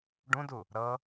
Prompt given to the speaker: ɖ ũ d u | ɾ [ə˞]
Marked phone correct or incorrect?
incorrect